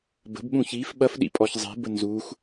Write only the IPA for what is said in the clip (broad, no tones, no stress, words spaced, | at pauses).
bə̤bɓũ çif ɓɐfɗḭpʼɔç zˤi̤bə nzux